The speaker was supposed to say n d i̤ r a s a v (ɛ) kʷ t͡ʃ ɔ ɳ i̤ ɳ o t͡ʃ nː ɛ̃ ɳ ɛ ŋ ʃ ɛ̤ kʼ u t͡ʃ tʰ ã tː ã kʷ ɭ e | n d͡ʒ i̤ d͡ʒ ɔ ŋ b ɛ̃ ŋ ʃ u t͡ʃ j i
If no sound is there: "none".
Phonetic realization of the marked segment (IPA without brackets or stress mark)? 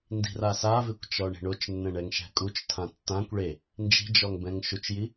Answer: ɪ